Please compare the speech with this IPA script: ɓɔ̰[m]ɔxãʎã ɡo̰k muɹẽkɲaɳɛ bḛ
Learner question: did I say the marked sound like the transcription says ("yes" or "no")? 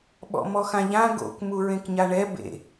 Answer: yes